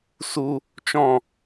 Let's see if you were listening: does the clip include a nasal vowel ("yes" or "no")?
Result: yes